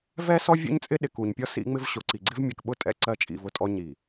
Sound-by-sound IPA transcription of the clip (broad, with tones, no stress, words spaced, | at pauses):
vɛ˦ sɔ˦vʲṵ˦ɲt͡sʼɪ˦ɗɪ˨ ku˨ɲpʲɔ˦ sḭ˦ŋ͡mɪ˦v ɕʊ˨ǀi˨ɡ͡ǀɪ˦v mʲɛ˨kɓʊ˦˨tʼɛ̰˦˨ ǀɜ˦t͡ʃʼḭ˦˨vʊ˦tʼɔ˦ ɲi˨